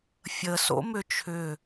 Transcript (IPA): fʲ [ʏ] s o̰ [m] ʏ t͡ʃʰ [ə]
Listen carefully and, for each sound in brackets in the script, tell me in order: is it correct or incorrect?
incorrect: ə, correct, incorrect: ʏ

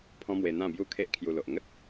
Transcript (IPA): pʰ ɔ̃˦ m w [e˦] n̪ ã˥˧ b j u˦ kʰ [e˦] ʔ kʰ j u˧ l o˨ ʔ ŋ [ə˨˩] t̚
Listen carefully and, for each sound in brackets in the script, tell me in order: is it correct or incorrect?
incorrect: e˧, correct, incorrect: ə˦

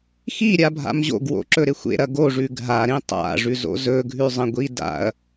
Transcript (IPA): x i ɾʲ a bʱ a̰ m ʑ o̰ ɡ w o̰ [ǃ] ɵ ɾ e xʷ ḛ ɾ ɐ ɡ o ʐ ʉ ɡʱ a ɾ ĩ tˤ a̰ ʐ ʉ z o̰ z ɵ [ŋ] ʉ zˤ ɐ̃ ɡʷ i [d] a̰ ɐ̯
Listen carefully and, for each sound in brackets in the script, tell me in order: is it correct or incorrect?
incorrect: ǁ, incorrect: ɡʱ, correct

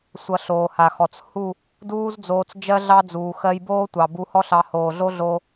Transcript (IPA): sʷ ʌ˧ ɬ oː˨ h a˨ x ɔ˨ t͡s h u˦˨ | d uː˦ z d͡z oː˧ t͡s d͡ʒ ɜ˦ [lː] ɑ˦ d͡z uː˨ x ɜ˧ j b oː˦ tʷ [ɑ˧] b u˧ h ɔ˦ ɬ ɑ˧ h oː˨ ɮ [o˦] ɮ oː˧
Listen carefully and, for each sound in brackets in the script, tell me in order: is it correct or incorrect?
incorrect: ɮ, incorrect: ɑ˨, correct

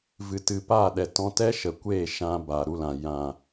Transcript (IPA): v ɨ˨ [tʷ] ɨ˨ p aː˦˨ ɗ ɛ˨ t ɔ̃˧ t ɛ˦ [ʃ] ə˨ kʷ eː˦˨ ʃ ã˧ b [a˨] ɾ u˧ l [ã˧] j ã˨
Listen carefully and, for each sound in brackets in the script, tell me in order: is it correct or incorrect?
incorrect: t, correct, correct, incorrect: ã˨

